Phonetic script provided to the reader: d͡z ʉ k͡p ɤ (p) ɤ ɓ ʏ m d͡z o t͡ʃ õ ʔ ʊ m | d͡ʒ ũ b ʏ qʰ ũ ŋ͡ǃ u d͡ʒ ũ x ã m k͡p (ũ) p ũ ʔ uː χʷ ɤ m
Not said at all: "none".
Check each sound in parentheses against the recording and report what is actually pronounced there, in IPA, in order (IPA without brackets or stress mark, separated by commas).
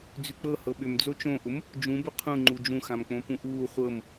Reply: h, õ